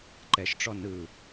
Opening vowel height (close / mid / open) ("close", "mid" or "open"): mid